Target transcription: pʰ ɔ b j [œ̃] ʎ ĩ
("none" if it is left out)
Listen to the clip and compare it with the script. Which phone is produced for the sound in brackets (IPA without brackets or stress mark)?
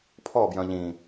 œ̃